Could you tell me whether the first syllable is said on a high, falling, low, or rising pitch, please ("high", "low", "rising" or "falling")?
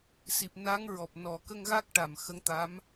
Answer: low